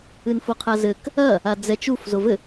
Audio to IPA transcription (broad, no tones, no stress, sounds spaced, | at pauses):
ɨ n f o qʰ a z ɘ k | ɐ | a d͡z ɛ t͡ʃ u f z o v ɘ